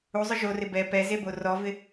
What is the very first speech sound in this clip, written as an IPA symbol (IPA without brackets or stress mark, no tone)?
u